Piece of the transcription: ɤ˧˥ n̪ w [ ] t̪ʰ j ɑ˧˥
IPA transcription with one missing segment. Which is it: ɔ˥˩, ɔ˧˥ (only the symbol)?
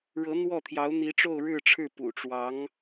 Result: ɔ˥˩